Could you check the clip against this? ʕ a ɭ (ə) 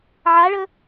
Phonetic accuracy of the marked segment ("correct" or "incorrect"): correct